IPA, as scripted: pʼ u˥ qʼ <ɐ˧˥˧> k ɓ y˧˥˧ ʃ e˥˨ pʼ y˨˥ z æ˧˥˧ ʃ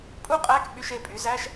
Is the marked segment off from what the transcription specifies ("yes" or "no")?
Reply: yes